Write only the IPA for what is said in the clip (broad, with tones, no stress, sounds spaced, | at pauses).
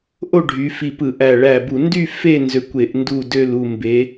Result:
ʔ o˥˨ ɖʱ y˨˦ f i˧˩ p ɯ˧˩˧ ʔ æ˧˩ ɭ æ˧˩ b u˧˩˧ n d y˥˨ f e˥˨ n z ø˧˩ kʷ e˧˩˧ ʔ n d u˥˨ d ø˥˨ l u˥˨ m b e˨˦